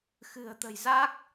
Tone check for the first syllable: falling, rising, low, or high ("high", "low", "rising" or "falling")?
low